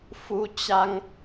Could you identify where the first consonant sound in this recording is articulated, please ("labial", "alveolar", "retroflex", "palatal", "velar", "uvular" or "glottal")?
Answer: labial